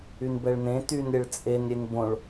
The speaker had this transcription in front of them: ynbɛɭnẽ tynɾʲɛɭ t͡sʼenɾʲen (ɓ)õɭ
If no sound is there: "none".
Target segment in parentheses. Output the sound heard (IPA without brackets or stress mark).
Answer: b